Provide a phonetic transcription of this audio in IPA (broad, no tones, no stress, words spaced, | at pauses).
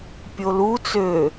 pʲolu t͡sø